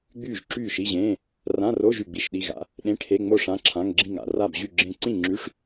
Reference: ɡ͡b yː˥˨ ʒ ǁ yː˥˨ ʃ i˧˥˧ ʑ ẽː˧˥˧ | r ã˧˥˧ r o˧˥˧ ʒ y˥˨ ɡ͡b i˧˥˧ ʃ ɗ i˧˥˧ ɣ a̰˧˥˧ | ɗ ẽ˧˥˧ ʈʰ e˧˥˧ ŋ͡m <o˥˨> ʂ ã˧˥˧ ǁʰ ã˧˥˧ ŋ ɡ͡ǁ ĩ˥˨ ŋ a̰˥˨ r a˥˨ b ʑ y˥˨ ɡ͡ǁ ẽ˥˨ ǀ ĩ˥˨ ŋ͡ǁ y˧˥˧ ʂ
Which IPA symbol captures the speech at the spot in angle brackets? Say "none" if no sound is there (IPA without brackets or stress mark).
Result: o˥˨